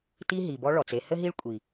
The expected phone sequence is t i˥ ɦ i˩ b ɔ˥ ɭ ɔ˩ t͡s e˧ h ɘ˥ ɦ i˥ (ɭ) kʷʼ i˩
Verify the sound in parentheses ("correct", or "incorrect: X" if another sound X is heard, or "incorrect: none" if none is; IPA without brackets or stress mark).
correct